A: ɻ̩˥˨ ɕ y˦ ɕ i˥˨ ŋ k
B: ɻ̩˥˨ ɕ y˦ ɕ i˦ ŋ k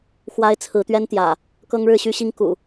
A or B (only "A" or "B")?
B